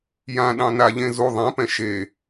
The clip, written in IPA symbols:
j ã ɗ ɑ̃ n a ʎ ẽ z u ðˤ ɛ̃ p ɛ̃ ʃ e

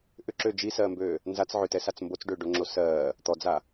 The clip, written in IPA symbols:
ʔ ʏ ǁ ø d͡ʒ i s ɜː m b øː | n z a t͡s ʕ ʏ t ɛ s a t͡s m b o t͡s ɖ ʏː ɖ o ŋ͡ǁ o s ɜː | t̪ ɔ d͡z a

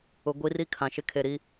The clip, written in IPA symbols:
ʊ˨ ɡʷ i˦ r i˦ kʰ ã˨ ʃ ɪ˦ kʰ e˨ ɾ i˦

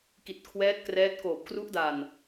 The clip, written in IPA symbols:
k i˨˩ t̚ kʰ w ɛː˦˥ t̚ k r ɛː˦˥ t̚ k oː˨˩ p̚ k r u˦˥ ʔ d a˨˩ n

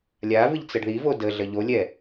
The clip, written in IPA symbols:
lʲ a v ɨ ʎ t͡s ə ɖ ð i v o d ə ɮ ə ʎ o lʲ ɛ

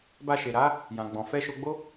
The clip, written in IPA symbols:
b a˧ ʃ e˨ ɾ a˨˦ | j ã˨ ɡ͡b ɔ̃˨ f ɛ˧ ʃ o˧ ɡ͡b o˦

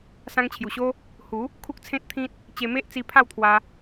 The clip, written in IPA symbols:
s ã˧ ŋ t͡ɕʰ j u˨˩ ɕ o˦ | h u˨˦ | kʰ u˦ k̚ t͡sʰ ẽ˦ t̚ t̪ʰ ĩ˦ t̚ | t͡ɕ e˧ m e˦ ʔ t͡s i˧ pʰ a˥˧ w t̪ʰ w a˧

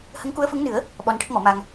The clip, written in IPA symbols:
h ə˧˥ ŋ k u˧˥ ə̯ f ə˧˥ ŋ n ɨ˨˩˦ ə̯ | ɓ ɔ˧ n ʈ ə˦˥ k̚ m ɔ˨˩˦ m a˧ ŋ

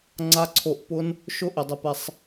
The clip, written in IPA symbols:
ŋ͡ǀ a˦˥ ǀʰ o˧˩˧ ʔ p ʊ˦˥ n | ʃ ʊ˥˧ ʔ ɪ˧˩˧ dˤ ɛ˧ p ɛ˧ sˤ

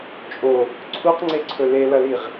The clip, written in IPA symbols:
t͡ʃʼ o | ǀʰ u q ŋ͡ǀ e ǀʰ ɵ l e l ɐ l i ʁ

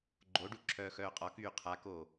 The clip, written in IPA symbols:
ɡ͡ǃ o ɖ u ǁʰ œː x œː qʼ ɒ k yː qʰ a k oː

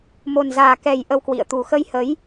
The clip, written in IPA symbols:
m o˨˩ n z aː˨˩ k ɛ˨˩ j ʔ ə˧ w k w ḭ˧˨ ə̯ t̪ u˨˩ x ə˧ j h ə˨˦ j

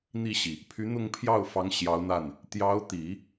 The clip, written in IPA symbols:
n̪ i˥˩ ɕ i˩ | pʰ y˧˥ n̪ ʊ˥˧ ŋ pʰ j ɑ˥˩ ʊ̯ f ɑ˧˥ ŋ ɕ j ɑ˧˥ ʊ̯ n̪ a˥˩ n | t̪ j ɑ˧˥ ʊ̯ t̪ i˨˩˦

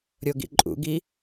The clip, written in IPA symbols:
ɾʲ o ɡ ḭ ǃʼ ṵ ɡ i

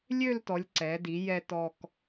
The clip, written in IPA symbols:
lʲ ø˥˧ l t ɔ˩˧ lʲ ǀ ɛ˩˧ d i˩˧ j ɛ˧ t ɔ˧ k

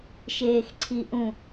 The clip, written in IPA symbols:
ʃ eː x ǀʰ i ʔ ũ

